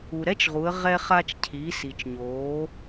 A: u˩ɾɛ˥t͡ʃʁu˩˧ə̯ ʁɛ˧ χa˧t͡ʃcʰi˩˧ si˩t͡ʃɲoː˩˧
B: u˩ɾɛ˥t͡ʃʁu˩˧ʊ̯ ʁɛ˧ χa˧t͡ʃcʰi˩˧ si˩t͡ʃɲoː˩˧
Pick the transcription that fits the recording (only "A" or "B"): A